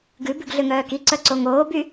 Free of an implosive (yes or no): yes